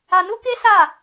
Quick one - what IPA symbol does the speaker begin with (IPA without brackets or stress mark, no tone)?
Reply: a